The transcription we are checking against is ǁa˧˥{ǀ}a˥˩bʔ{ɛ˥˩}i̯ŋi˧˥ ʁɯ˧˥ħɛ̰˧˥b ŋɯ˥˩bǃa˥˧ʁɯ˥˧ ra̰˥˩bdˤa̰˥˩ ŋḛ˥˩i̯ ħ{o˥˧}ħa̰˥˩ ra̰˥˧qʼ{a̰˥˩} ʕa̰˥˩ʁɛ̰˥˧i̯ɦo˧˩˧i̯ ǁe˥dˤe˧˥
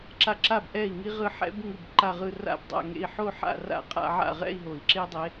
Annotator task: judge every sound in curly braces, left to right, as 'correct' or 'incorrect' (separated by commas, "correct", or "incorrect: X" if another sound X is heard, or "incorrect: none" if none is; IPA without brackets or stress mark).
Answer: incorrect: ǁ, correct, correct, incorrect: a̰˥˧